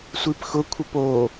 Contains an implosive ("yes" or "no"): no